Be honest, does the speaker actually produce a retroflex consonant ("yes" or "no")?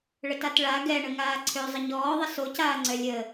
yes